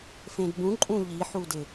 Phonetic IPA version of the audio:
fẽdbũǃʼũ ʎiħu dɪ

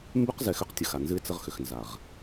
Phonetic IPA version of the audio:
mbʉ˦qzɛ˨ xʏ˦qtʲə˨xa˨nzɨ˦ɪ̯ t͡sə˦ʁxʏ˨xnza˨ʁ

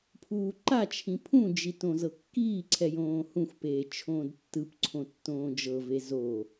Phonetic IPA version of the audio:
pʰuːǃat͡ʃʰĩ pʰũd͡ʒitõzɤ kːiːǀʰɛjõː hũxʷpeː t͡ʃʰõːdtːɯpǀʰõ tːõːd͡ʒɤve zo

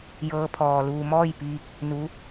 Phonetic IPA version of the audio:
jɤː˧˥pʰɔː˩luː˧ mɔː˥˨jpiː˧k̚ | nu˧˥

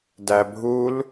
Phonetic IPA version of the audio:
dæbʱul

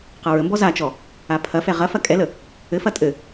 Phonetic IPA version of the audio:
qɐɹəmbɔ zat͡ʃɔ | apʰɐfɛ ʁɐ fɐkʼɛlə | ɘfɐ tʼɘ

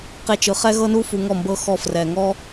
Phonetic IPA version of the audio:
qe˧t͡ʃɯ˨ χɛ˦ɣɤ˦nu˦ fu˧ŋɔ˦˨mbɤ˦ xɔ˧frɛ˨ŋɔ˦

